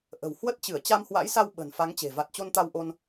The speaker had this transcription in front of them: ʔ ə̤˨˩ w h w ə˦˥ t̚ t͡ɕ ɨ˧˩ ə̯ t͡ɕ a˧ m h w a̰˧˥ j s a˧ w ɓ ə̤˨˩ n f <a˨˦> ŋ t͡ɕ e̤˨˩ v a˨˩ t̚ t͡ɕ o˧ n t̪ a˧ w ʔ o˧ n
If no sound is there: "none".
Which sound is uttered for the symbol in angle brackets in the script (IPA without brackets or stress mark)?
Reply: a˨˦